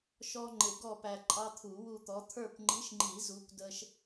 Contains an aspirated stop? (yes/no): yes